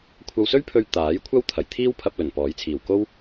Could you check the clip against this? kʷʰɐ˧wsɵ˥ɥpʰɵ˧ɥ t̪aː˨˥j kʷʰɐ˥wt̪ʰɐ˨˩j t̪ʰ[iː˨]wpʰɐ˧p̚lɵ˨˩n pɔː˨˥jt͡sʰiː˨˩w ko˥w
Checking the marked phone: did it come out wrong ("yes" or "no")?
yes